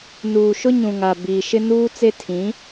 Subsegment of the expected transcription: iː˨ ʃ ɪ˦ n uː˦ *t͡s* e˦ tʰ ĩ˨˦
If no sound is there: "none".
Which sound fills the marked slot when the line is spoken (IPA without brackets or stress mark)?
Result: t͡s